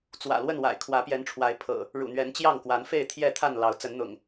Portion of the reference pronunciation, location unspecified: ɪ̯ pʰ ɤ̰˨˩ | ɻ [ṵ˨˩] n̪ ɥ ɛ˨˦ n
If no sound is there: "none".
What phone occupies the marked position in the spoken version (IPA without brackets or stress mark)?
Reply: ṵ˨˩